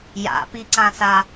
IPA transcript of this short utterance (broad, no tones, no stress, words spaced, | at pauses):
ja̰piǀãsa